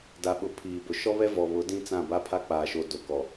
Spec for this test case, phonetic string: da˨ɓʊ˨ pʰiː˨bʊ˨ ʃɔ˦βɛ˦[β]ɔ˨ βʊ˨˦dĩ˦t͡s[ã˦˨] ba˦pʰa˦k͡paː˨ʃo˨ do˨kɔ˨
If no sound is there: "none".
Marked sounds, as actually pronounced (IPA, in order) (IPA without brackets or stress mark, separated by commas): v, ã˦˨